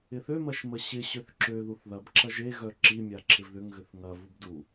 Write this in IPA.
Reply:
ɪ θ ø m ɐ ʃ m ə ɕ ɪ ɕ ø θ ǁ ø ð u θ ð ɐ b ǁ ɐ ʒ e ɣ œ ǁ i mʲ a ǁʰ ɪ v ð ʏ ŋ ɣ ʏ θ ŋ ɐ v u b d u

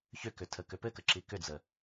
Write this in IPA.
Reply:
ç ʏ k ʏ tʰ ə k ʏ p ɘ k ə ǁ i k ʏ d͡z ə

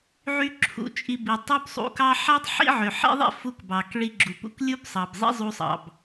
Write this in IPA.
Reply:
ʕ y˥ ǁʰ ṵ˧ t͡ʃʼ i˧ b i˩ tˤ u˥ b sˤ ṵ˧ k ɑ˥ ħ æ˥ tˤ ħ ḭ˥ ʕ ø˩ ħ ḭ˥ ðˤ ḭ˥ f u˧ k b ɑ˩ k ɭ i˧ ɡ͡ǁ u˩ p ṵ˧ k lʲ u˥ b sˤ ɑ˩ b zˤ ḭ˥ zˤ u˧ sˤ ɑ̰˩ b

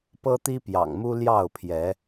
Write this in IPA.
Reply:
p ɤ˦ t̪ i˦ p j ɑ̰˨˩ ŋ m u˦ l j ɑ˥˨ ʊ̯ pʰ j ɛ˨˦

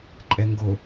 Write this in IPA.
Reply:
ǃʼ ɛ ŋ ɡ o

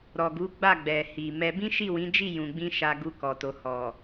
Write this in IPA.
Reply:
ɾ ɔ˨ ɡ u˨˦ ɡ͡b a˦˨ ɡ͡b ɛ˨ h i˨ m ɛ˧ b ĩ˦ ʃ i˦˨ w ĩ˨˦ d͡ʒ i˦˨ j ũ˧ ɡ͡b ĩ˦ ʃ a˧ ɡ u˧ k ɔ˨ t o˨ h ɔ˨

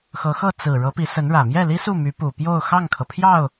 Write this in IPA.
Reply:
x ɤ˧˥ x ɤ˥˩ t͡s ɹ̩˨˩ ɻ ɤ˧˥ p i˧˥ s ə˧˥ n ɻ ä˨˩ m j ɛ˥˩ l i˥ s u˥˩ m y˧˥ p u˨˩ p j o˥˧ ʊ̯ x ɑ˥˩ ŋ kʰ ɤ˩ pʰ j ɑ˥˩ ʊ̯

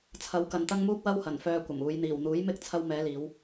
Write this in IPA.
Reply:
t͡sʰ ɐ˨˧ w k ɐ˨ n t̪ ɐ˥ ŋ m uː˥ k̚ w ɐ˥ w h ɐ˨˩ n f œː˧ kʷ ɐ˨˩ m uː˨˧ j n̪ iː˨˩ w n̪ uː˨˥ j m ɪ˥ k̚ t͡sʰ ɐ˧ w m ɛː˨˧ l iː˨˧ w

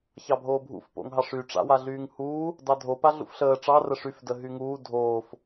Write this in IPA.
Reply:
ç ɑ bʱ oː bʱ ṵ f p o̰ ŋ ɦ ɑ ʂ y ʈ͡ʂ a̰ w a ɮ yː ŋ h uː | d ɑ dʱ o p a ɮ ṵ f ɬ əː ʈ͡ʂ ɑ r ə ʂ y f d ə ɦ y ŋ uː dʱ oː f

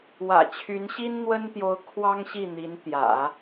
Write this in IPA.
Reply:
w ä̰˨˩ t͡ɕʰ y˧˥ n ɕ i˥ n n̪ w ə˥ n t̪ j o˧˥ ʊ̯ kʰ w ɑ˥ ŋ ɕ i˥˩ n̪ i˧˥ n t̪ j ä̰˨˩˦

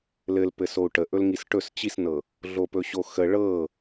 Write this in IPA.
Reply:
l ɘ l p ɘ s o u̯ ʈ ə ʔ ɵ l ŋ i s ʈ ɵ s t͡ɕ i s n ɤ | ɮ o p ɵ ɕ o x ə ɭ ɤ

